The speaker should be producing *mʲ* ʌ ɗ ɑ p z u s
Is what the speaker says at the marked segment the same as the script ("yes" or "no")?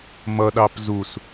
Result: no